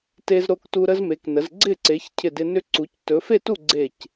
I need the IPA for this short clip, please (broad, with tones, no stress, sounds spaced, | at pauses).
t e˦ z ɾ o˦ k t u˦ ɾ ə˦ z m e˨˦ k n ə˨˦ z ɡ͡ǀ ɪ˥˨ ǀ e˨˦ ç cʰ ɪ˥˨ d ɪ˦ n ʏ˦ ǀ u˨˦ c t ɵ˨˦ f e˥˨ t u˥˨ ɡ͡ǀ e˥˨ c